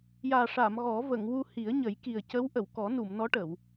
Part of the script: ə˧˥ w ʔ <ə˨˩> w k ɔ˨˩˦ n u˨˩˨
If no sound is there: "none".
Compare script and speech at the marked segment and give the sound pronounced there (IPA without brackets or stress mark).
ə˨˩˨